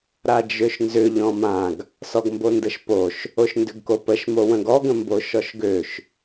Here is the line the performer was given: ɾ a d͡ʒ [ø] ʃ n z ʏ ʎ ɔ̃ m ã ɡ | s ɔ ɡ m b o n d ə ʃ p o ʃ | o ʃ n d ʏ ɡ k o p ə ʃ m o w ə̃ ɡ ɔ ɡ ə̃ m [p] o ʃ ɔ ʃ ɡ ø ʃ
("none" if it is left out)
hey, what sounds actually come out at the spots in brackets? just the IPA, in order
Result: ø, b

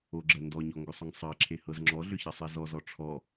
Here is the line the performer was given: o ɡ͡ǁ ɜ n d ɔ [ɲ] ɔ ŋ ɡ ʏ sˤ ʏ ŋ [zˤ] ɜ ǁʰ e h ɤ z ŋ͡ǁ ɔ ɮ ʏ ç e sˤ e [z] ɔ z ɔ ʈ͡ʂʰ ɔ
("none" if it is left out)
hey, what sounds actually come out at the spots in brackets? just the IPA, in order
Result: ɲ, sˤ, z

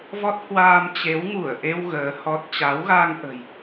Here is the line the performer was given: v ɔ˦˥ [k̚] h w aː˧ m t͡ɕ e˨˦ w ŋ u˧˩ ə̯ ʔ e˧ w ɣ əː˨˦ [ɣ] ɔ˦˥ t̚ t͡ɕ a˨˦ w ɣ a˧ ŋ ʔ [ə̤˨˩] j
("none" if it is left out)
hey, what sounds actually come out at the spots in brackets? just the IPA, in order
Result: t̚, h, ə̤˨˩

